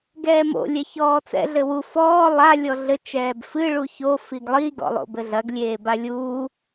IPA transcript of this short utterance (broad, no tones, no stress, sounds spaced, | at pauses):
ɡ ɛː m o̰ lʲ ɛ ç ɔː t͡s ɛ̰ ɮ ɘ w u f ɔː lˠ a lʲ ɔ ɮ ɘ t͡ʃ ɛː b f ɨ ɭ u ç o f i ɡ lˠ i ɡ ɔ̰ lˠ o̰ b ɘ ɮ ɐ ɡ lʲ eː b a lʲ uː